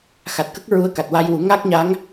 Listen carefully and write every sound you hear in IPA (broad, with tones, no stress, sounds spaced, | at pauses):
x a˨˩ t̚ k ə˦˥ k̚ ɹ u˧ ə̯ k a˨˩ t̚ w a˧ j w u˨˩˦ ŋ a˦˥ k̚ ɲ a˧˥ ŋ